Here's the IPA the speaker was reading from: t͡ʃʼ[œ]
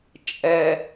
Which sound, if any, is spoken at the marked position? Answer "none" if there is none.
ɛ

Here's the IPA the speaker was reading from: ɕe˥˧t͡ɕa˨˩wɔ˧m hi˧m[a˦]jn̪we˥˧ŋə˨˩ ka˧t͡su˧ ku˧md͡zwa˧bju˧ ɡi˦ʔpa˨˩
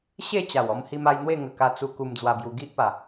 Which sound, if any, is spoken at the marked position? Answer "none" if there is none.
a˧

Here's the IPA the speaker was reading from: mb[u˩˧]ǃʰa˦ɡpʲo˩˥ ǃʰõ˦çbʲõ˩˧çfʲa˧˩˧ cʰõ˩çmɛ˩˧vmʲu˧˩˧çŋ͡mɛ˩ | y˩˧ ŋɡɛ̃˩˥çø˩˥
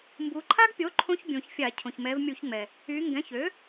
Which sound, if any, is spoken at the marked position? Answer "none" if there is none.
u˩˧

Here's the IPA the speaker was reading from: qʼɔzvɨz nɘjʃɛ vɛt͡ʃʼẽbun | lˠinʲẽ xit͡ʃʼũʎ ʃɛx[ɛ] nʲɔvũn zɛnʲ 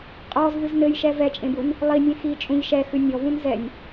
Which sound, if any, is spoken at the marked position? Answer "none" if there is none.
ɨ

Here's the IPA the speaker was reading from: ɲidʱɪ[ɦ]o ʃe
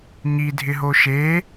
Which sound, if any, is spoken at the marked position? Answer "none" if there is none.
ɦ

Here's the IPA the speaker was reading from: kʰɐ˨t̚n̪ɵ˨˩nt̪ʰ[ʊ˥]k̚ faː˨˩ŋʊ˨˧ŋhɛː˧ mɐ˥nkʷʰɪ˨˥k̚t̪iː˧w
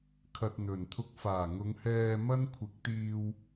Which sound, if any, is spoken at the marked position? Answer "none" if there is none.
ʊ˧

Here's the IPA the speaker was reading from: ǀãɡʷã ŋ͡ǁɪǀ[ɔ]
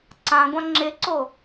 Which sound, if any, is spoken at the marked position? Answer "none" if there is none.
o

